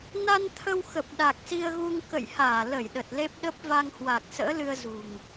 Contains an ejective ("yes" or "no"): no